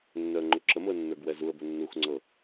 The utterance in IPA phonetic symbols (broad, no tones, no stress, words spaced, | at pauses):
nːœə̯ŋ͡ǃʊǁəmʊə̯ nːə˞ɡwɛzuə̯bʊ nːuxŋ͡ǀɤ